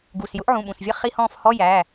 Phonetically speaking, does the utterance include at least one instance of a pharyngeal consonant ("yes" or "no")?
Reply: yes